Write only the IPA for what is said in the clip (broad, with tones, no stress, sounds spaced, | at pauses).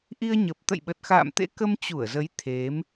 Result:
ʔ i˧ ə̯ ɲ ə˨˩ p̚ t̪ ə̰˧˨ j ɓ ə˨˩ t̚ x a̰ː˧˨ m t̪ ḛ˧˥ k ə˧ m t͡ɕ u˧˩ ə̯ z ə˨˦ j t̪ʰ e˨˦ m